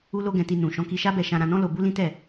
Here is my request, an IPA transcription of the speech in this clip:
u˦ l o˦ ɡ ɛ̃˧ t i˧ n ũ˨ ʃ ɔ̃˨˦ k i˧ ʃ a˦ b ɛ˧ ʃ ã˧ ɾ ã˧ n ɔ̃˦ l o˧ b u˦ l ĩ˦ t ɛ˦˨

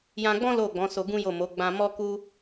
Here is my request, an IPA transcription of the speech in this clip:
j ã˧ ɡ͡b ɔ̃˦ l o˦˨ ɡ͡b ɔ̃˨˦ s o˧ ɡ ũ˦ j o˦˨ m o˨˦ ɡ͡b ã˧ m ɔ˦ k u˦

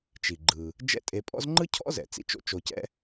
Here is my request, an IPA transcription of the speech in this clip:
t͡ʃ i˩ ɡ͡ǃ ɯ˩ | d͡ʒ ɛ̰˦ tʼ e˨ pʼ ɔ̰˥ z ŋ͡ǃ ɯ˥ cʰ ɔ̰˥ z ɛ̰˩ t͡s ḭ˦ t͡ʃ o̰˦ t͡ʃ o˨ c ɛ̰˦

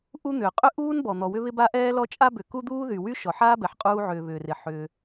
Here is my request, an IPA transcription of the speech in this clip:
ʔ u˥ n̪ ʏː˩ qʼ ʏ˥ ʔ uː˥ n b ɔ˩ n̪ ɔ˩ w ʏ˥ β ɪ˥ b a˥ ʔ ɛː˥ l ɔ˥ t͡ʃʼ a˥ b ʏ˩ k u˥ d̪ uː˥ ð y˩ w y˥ ʃ ɔ˩ ħ aː˥ b ɛ˩ ħ qʼ uː˥ ʕ ʏː˩ β ʏː˩ r ɪ˩ ħ ʏː˩

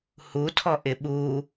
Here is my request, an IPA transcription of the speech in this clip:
h u tʰ ɔ ʔ ɪ ɓ u

